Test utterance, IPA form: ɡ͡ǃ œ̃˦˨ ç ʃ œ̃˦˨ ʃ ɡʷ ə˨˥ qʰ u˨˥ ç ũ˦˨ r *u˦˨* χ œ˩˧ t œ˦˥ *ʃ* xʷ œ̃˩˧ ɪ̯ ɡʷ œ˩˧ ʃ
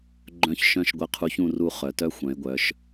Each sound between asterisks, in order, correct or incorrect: correct, incorrect: none

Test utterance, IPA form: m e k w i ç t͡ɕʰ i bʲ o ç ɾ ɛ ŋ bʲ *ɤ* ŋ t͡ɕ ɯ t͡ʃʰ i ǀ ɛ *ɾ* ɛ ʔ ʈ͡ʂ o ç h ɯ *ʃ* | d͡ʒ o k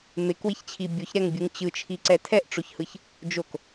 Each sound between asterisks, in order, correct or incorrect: incorrect: ɯ, incorrect: tʰ, incorrect: ç

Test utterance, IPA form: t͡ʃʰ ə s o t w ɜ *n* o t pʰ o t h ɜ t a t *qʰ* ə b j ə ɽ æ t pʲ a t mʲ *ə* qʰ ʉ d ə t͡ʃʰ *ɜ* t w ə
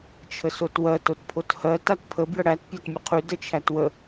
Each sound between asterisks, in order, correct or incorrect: incorrect: t, incorrect: pʰ, correct, incorrect: æ

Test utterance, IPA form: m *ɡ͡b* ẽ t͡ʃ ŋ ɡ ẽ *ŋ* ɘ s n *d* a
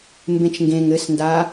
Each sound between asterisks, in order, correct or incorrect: incorrect: b, correct, correct

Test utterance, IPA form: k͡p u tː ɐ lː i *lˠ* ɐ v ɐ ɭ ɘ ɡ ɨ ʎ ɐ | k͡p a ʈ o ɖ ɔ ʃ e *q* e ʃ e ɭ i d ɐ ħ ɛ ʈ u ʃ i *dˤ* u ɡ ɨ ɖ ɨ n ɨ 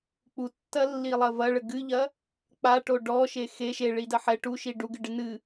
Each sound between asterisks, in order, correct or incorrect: correct, incorrect: x, incorrect: ɖ

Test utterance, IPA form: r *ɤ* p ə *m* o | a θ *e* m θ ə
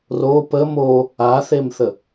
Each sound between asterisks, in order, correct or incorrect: incorrect: o, correct, correct

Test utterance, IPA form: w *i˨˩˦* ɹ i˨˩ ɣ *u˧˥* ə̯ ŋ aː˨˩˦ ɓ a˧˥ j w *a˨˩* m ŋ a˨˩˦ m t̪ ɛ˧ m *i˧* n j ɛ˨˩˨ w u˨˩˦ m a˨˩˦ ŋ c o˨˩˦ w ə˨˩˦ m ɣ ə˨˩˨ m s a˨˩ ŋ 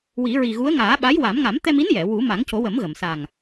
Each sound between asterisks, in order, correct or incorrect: correct, correct, incorrect: a˨˩˦, incorrect: i˧˥

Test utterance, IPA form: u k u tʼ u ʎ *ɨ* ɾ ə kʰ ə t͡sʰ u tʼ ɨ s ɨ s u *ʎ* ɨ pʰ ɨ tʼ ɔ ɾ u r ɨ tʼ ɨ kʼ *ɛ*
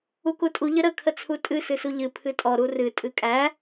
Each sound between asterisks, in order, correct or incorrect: incorrect: ə, correct, incorrect: æ

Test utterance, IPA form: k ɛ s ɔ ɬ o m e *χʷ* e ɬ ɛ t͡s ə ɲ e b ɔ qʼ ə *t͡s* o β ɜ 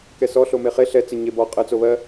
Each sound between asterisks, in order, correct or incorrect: incorrect: χ, correct

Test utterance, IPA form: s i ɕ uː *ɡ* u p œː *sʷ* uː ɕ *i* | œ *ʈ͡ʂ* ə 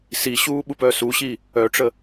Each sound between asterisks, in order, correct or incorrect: incorrect: ɓ, incorrect: s, incorrect: iː, correct

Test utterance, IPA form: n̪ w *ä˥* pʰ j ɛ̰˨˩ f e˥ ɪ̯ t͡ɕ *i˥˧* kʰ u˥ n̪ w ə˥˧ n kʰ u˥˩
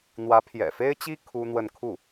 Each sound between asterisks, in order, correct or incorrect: incorrect: ä˧˥, incorrect: i˥

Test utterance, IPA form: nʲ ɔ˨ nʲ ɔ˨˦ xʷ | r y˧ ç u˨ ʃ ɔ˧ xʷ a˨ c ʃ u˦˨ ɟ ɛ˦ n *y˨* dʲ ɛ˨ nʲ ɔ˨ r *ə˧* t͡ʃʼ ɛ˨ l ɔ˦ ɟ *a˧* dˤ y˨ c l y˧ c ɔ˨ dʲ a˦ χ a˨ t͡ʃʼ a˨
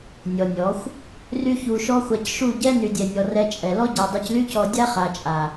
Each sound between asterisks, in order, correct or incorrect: correct, incorrect: ɛ˧, incorrect: a˨

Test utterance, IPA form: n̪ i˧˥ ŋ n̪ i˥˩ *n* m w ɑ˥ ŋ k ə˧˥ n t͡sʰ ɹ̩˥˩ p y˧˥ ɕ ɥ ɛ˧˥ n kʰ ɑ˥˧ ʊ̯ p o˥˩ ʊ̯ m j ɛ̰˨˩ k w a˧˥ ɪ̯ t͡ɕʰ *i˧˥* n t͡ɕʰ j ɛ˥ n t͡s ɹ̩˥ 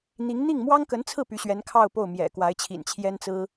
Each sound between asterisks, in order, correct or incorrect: incorrect: ŋ, incorrect: ḭ˨˩

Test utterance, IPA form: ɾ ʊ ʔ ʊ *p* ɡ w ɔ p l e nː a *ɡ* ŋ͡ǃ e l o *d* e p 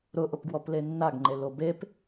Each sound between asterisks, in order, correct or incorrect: correct, correct, incorrect: b

